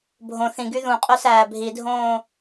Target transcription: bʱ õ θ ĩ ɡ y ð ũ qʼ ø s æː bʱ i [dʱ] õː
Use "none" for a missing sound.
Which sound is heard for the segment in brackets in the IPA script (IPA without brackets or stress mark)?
dʱ